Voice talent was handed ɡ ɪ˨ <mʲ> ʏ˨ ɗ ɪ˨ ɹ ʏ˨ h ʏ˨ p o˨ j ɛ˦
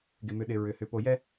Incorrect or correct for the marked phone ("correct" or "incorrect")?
incorrect